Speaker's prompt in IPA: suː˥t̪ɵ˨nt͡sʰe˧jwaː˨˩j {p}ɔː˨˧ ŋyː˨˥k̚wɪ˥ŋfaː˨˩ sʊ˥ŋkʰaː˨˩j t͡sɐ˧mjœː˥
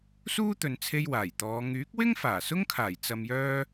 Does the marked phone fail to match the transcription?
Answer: yes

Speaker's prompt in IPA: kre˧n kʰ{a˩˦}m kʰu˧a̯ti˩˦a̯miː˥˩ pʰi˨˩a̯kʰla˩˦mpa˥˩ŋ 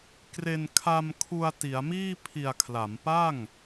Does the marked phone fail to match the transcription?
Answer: yes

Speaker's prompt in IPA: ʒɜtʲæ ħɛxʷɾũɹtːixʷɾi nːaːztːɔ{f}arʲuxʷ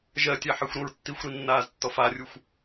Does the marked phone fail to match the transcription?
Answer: no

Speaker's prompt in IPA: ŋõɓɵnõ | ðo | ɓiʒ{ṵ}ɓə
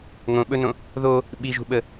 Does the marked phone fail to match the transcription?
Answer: yes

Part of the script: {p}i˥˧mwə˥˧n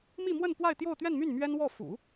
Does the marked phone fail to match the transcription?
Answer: yes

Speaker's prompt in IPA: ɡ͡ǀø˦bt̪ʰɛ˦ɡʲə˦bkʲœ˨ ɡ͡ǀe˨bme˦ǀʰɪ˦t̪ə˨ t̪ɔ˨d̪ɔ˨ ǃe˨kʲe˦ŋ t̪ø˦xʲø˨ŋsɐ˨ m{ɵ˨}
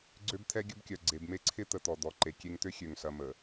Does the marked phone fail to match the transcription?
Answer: yes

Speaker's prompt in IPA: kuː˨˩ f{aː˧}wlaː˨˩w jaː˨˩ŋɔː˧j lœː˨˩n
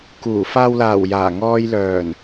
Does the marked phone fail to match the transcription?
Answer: yes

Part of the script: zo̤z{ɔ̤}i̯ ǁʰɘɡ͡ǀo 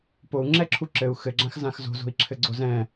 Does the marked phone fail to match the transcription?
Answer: yes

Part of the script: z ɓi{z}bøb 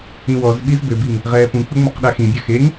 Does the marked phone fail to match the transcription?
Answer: no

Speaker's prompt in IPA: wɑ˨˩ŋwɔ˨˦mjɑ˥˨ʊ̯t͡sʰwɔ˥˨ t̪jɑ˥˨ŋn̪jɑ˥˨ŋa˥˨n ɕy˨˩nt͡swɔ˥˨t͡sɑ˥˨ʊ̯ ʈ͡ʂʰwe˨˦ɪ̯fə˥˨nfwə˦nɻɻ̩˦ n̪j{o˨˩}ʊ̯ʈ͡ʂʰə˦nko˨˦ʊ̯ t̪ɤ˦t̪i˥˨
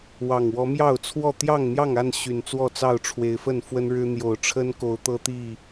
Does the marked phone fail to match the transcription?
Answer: no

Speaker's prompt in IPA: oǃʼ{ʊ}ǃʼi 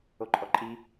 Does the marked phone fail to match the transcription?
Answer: yes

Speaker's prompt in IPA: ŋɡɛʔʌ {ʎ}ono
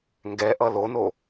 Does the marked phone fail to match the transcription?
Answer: yes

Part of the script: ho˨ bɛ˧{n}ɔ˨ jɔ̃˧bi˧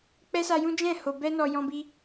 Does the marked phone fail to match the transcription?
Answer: no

